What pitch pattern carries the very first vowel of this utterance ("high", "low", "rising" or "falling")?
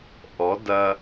rising